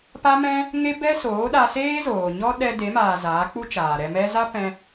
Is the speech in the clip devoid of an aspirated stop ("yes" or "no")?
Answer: yes